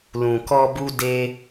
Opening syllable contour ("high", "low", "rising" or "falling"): low